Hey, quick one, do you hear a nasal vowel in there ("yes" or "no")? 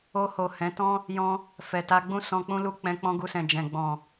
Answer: yes